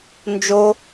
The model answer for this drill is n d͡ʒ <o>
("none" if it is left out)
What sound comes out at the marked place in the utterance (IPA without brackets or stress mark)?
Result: o